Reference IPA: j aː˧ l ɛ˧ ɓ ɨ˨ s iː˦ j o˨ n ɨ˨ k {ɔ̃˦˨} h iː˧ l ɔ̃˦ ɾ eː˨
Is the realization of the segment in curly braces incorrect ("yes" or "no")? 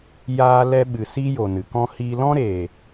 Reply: yes